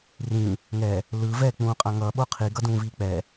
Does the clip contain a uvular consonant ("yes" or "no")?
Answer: yes